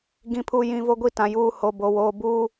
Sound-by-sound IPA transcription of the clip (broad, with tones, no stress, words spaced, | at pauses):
ɡĩ˨pʰu˨jĩ˨ vo˦ɡʷi˦˨ tã˨juː˦˨ ho˨ bo˨woː˨ buː˦˨